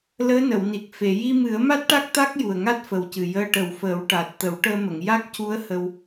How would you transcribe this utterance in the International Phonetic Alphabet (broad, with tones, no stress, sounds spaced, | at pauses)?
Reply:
l əː˧˥ n ə˨˩˨ w n i˨˩ k̚ f e˨˩˨ j i˧ m ɨ˨˩˦ ə̯ m a˦˥ t̚ ʈ a˦˥ k̚ t̪ a˦˥ k̚ j u˨˩ ə̯ ŋ a˦˥ t̚ f ə˨˩ w c ɨ˨˩ j əː˧ ʈ ə˨˩ w f əː˨˩˦ w ʈ a˨˩ t̚ t̪ ə˨˩˦ w ʈ əː˧ m ə˨˩˨ ŋ j a˦˥ k̚ c u˧˥ ə̯ h ə˧ w